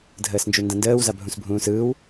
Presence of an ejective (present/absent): absent